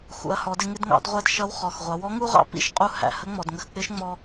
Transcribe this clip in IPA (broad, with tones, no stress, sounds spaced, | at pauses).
x ṵ˩˧ ɐ̯ h ɔ˩˧ d ɪ˧ ŋ ɪ˧ d ŋ ɑ̰˩˧ d ʁʷ æ˧ d ʃ ʌ˧˥ w χ ɔ˩ x ʁʷ ɑ˩˧ w ɔ˧˥ ŋ u˥ ʁ ɑ̰˥ p ḭ˥ ʃ qʼ u˧ h æ̰˩ h ə˧˥ ŋ͡m ɔ˩ d ŋ ə˧ x k͡p ɪ˧˥ ʃ ŋ͡m ɔ˧